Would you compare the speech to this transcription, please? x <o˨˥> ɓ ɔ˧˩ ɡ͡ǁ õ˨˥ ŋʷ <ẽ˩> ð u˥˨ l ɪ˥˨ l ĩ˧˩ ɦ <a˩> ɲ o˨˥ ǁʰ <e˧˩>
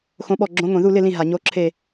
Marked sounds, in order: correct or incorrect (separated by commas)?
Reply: incorrect, incorrect, correct, correct